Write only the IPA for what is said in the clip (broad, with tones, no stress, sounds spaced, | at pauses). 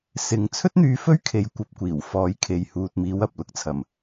s ɪ˨˥ ŋ t͡sʰ ɵ˥ t̚ n̪ yː˧ f ɵ˥ ɥ kʰ e˨˧ j kʷ ɐ˨ p̚ kʷ iː˨˩ w f ɔː˨˥ j kʰ e˨ j h uː˨ t̚ m iː˨˧ w ɐ˨ p̚ l ʊ˧ k̚ t͡sʰ ɐ˨˩ m